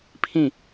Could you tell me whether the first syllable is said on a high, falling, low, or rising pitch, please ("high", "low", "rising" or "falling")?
falling